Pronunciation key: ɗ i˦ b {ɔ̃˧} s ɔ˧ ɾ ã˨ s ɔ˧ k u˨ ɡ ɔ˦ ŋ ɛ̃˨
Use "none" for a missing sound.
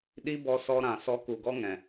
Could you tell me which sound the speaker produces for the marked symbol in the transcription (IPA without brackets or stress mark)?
ɔ˧